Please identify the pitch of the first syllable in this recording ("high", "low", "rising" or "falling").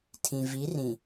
low